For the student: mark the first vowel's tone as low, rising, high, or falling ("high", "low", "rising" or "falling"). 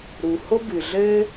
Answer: low